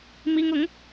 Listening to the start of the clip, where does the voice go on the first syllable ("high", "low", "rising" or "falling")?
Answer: high